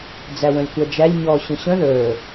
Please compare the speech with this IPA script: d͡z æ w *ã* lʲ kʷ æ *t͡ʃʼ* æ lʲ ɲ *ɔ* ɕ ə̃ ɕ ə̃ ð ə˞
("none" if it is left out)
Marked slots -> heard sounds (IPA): ə̃, d͡ʒ, ɔ

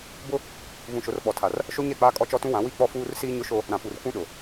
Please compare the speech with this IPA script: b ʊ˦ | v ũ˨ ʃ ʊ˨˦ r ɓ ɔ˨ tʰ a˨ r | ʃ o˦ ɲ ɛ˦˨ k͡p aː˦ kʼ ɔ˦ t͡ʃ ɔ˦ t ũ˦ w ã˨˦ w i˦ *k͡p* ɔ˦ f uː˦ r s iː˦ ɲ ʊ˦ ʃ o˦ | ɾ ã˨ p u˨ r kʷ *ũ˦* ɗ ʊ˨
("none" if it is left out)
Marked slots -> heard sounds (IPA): k͡p, ũ˦

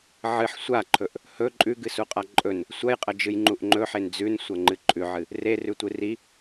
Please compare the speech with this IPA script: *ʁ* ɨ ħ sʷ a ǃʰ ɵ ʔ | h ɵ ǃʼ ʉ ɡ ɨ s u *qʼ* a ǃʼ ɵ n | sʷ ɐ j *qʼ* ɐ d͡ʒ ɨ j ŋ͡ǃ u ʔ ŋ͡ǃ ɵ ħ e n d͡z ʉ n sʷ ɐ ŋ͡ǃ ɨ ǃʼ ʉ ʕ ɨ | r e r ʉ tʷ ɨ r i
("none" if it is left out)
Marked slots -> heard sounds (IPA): ʕ, qʼ, qʼ

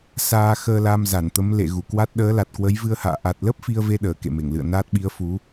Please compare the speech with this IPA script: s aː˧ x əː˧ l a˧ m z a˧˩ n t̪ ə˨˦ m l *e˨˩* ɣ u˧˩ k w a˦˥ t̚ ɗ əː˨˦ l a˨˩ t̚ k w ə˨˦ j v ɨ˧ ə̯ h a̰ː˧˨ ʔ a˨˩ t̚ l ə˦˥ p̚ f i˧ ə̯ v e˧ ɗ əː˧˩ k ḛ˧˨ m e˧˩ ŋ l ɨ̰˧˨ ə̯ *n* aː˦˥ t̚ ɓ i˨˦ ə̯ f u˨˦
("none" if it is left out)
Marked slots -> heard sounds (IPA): ḛ˧˨, n

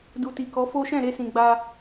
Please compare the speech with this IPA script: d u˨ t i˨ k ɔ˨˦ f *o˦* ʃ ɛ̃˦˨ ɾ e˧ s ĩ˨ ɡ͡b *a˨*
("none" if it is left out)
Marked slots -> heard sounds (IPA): o˦, a˧

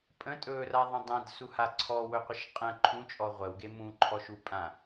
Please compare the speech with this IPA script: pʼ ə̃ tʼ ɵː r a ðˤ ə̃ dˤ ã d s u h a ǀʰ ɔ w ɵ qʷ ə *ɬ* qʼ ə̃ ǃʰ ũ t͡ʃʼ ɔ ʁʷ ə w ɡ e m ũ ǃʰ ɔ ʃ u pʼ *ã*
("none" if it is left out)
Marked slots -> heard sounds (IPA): ʃ, ã

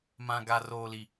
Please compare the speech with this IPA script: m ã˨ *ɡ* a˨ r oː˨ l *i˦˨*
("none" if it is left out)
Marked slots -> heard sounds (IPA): ɡ, i˨

